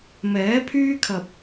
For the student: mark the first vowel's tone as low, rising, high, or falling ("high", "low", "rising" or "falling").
rising